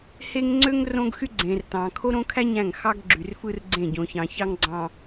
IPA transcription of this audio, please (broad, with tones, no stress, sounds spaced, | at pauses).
h e˦ ŋ ŋ͡ǀ ø˦ ŋ r õ˦ ɡ x y˦ ɡ͡ǀ ẽ˨ r t ɑ̃˨ kʰ o˦ ɾ õ˦ kʰ æ˦ ɲ æ̃˦˨ ŋ x ɑ˦ ɡ ɡ͡ǁ y˨ r f ɯ˦ r ɡ͡ǀ ẽ˦˨ ɟ õ˨ ç ɑ̃˨ ç ɑ˦ ŋ ɡ͡ǀ ɑ̃˨